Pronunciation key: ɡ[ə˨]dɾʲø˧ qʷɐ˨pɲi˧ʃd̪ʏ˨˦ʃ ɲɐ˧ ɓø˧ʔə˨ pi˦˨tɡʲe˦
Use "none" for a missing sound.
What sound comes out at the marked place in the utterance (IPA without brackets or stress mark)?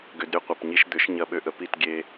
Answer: ʏ˨